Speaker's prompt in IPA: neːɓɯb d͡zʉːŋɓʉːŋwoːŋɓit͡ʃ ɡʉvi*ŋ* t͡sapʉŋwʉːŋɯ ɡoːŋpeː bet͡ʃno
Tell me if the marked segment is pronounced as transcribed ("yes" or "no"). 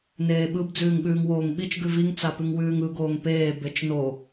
yes